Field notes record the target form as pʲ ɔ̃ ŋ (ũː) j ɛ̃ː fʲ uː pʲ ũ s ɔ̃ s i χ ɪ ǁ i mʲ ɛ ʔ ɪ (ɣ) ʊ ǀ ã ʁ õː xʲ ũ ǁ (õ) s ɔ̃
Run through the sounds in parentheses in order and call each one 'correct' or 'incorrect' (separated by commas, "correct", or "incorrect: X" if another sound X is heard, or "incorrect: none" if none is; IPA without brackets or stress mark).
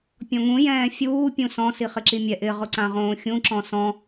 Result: incorrect: ũ, incorrect: ʁ, incorrect: ɔ̃